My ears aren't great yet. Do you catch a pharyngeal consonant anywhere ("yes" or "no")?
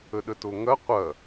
no